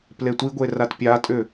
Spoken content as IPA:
p l e tʷ i ɡʷ e r a t pʲ a tʼ ʏ

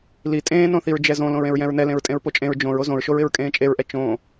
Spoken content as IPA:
l i tʼ ẽː n õ θ i ɹ d͡ʒ ɛ z õ l õ ɹ ẽ ɹ j ɛ̃ ɹ n ɛ l ẽ ɹ tʼ ẽ ɹ p o t͡ʃʼ ẽ ɹ d͡ʒ õ ɹ o z õ ɹ ʃ o ɹ ɪ ɹ kʼ ẽː t͡ʃʼ e ɹ ʔ ɛ t͡ʃ õ

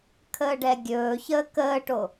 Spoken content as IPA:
kʰ əː ɖ ɛ ɡʲ ɵː ç əː k əː ʈ o

